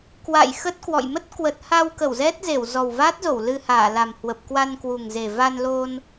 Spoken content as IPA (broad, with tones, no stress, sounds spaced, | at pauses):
k w a̰˧˨ j x ə˦˥ t̚ k w ɔ̰˧˨ j m ə˦˥ t̚ k w ə˨˩ t̚ h a˧ w k ə˧˩ w z ɛ˦˥ t̚ z e˧˩ w z ɔ˨˩ w v a˦˥ t̚ z o˧˩ w l ɨ˧ h aː˧˩ l a˨˩ m h w ə˨˩ p̚ k w a˧ n k w u˨˩ ŋ z e˨˩ v a˧ n l o˧ n